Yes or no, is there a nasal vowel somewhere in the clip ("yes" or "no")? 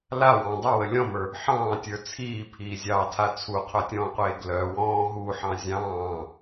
yes